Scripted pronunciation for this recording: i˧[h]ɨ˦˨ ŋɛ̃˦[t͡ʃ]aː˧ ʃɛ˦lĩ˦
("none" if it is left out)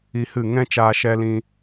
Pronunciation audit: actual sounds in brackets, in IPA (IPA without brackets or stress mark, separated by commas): h, t͡ʃ